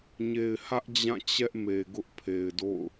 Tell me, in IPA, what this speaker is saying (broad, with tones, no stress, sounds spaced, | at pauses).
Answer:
ɲ e˨ ɪ̯ h ä˦ ʔ d͡ʑ ã˦˨ t͡ɕ ɛ˦ ʔ m e˨ ɡ ʊ˦ ʔ pʰ e˨ ɪ̯ d o̰˦˨ ʊ̯